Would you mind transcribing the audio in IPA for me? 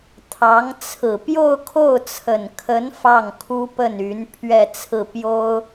t̪ʰ ɑ˧˥ ŋ t͡sʰ ɹ̩˨˩ p j o˥˧ ʊ̯ kʰ o˥˩ ʊ̯ t͡sʰ ə˨˩ n kʰ ə˧˥ n f ɑ˥˩ ŋ kʰ u˥ p ə˥˩ n y˧˥ n pʰ ɥ ɛ˥˧ t͡sʰ ɹ̩˥˩ p j o˥ ʊ̯

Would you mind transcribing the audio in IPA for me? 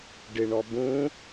ɖ ɪ ɳ ɔ b ũ

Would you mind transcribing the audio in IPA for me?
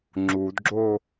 ŋ͡ǁ u d ɡ͡ǁ o

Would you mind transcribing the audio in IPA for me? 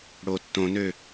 ɽ o tː õ n ø

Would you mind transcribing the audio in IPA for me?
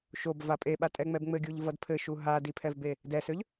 ʃ o b v a pʼ e ɓ a tʼ ɛ ŋ͡m ɛ b ŋ͡m ɘ ɡʲ u ʎ v ʌ d pʰ ɘ ʃ u ɦ a d i pʰ ɛ v b e | d ɛ s ø ʎ

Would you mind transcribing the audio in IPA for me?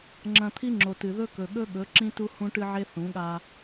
ŋ͡ǁ ɐ̃˨ t̪ʰ i˦ ŋ͡ǁ o˨ t ɨ˨ ð ɵ˦ k ɵ˨ ɠ ɵ˦ ɠ ɵ˨˦ ǁ ĩ˦ t u˦ h ũ˦ ʈ ɨ˦ ʕ e˦ θ ũ˨˦ ɠ a˦

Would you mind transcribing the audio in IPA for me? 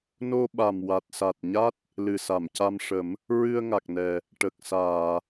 n o˧ ɓ a˨˩ m w a˨˩ t̚ s a˨˩ t̚ ɲ a˦˥ t̚ | l ɨ˨˩ s a˨˩˨ m c a˧ m ʂ ə˨˩˦ m | ɹ ɨ˧ ə̯ ŋ a˨˩ k̚ n ɛ˨˩ | ʈ ə˨˩ k̚ s aː˨˩˨

